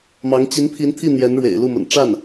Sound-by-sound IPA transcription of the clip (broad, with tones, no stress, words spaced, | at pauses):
mɑ˧˥ŋ t͡ɕi˧˥npʰi˧˥nt̪ʰi˥˩ n̪jɛ˧˥nɻwḛ˨˩ɪ̯lu˥˩mə̰˨˩n ʈ͡ʂa˥˩n